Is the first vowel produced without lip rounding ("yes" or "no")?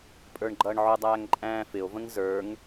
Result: yes